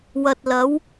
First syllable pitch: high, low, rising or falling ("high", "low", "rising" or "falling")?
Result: low